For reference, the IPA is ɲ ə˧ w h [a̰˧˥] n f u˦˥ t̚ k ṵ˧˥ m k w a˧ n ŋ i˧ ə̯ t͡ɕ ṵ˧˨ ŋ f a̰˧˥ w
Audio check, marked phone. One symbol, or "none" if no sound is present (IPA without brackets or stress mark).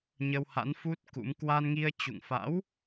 a̰˧˥